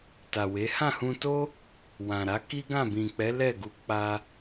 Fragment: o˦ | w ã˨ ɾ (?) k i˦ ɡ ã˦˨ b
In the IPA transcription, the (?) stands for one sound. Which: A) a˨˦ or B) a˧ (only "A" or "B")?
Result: A